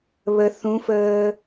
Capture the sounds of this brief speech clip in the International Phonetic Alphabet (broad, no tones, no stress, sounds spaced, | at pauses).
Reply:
β ə θ ũ f əː